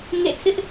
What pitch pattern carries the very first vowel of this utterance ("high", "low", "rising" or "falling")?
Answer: falling